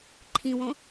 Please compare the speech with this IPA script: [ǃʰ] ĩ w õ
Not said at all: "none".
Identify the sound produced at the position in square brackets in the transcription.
ǃʰ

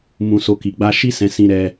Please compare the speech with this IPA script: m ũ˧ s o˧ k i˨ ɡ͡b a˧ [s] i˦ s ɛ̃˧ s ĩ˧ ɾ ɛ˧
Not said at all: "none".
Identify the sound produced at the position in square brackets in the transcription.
ʃ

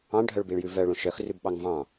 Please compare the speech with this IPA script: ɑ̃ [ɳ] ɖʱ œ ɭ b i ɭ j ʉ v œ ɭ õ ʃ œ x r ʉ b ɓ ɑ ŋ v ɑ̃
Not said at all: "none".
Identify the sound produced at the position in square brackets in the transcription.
ɳ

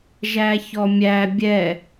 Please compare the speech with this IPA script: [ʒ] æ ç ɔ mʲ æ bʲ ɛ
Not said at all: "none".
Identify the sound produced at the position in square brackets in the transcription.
ʒ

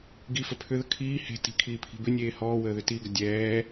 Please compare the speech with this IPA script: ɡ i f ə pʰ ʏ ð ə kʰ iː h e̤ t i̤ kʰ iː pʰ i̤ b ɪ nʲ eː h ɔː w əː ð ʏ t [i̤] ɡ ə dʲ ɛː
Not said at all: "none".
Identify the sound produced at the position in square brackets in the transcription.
i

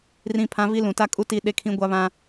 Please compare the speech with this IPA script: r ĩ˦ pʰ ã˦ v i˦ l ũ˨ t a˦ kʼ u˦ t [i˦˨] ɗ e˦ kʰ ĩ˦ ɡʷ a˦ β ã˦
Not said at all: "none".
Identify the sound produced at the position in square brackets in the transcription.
i˦˨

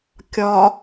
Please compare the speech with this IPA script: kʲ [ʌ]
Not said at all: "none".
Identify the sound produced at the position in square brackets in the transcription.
ɒ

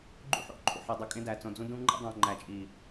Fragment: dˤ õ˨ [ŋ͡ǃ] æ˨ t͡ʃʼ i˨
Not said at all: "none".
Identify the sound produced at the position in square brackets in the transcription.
ŋ͡ǃ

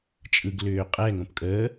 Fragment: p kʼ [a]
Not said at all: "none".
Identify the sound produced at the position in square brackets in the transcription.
ə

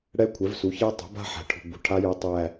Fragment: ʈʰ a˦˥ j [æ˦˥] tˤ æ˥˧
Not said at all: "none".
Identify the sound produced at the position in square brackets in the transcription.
ɛ˦˥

